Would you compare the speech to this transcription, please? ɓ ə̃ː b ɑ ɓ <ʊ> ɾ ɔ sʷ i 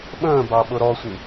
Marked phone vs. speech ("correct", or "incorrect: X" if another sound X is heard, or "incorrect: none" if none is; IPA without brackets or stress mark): correct